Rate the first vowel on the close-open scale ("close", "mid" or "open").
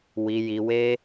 close